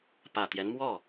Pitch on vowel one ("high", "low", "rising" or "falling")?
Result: low